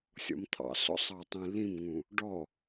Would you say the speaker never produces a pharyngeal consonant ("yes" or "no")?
yes